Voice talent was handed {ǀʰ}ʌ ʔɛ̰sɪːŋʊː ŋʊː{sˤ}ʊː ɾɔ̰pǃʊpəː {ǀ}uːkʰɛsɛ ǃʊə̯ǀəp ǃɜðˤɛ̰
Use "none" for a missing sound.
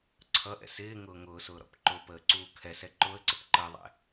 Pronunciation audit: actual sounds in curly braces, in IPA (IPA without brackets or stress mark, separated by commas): ǀʰ, s, ǀ